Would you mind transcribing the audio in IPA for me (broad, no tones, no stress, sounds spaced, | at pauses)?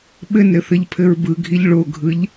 ɓ ɘ n ɾ ɘ θ ɘ ʎ pʰ ɘ ɹ b ɯ ɡʱ i ʎ ɭ o ɡʱ ɯ ʎ